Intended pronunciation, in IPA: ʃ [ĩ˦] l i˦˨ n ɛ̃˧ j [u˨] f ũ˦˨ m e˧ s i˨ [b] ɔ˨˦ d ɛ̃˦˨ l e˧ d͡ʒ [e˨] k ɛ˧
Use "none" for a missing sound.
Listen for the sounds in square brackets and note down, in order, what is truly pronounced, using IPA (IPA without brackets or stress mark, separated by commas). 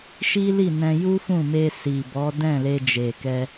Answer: i˦, u˦, b, e˨